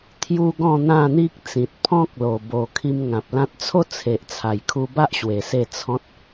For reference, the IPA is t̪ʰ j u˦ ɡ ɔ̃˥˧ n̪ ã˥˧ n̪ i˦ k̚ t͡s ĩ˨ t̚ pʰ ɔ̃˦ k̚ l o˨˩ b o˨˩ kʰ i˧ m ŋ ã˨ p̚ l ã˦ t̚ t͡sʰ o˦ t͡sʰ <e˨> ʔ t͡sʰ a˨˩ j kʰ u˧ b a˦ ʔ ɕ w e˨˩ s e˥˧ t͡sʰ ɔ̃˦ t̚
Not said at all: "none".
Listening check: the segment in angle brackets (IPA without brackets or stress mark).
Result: e˨